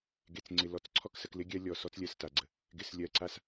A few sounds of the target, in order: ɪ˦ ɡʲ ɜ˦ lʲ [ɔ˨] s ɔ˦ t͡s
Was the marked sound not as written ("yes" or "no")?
no